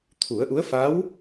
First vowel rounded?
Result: yes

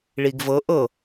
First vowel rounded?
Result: no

